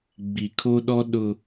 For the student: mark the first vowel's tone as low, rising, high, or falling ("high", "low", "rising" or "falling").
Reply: low